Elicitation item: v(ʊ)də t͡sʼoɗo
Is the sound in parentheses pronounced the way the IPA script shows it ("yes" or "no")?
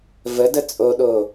no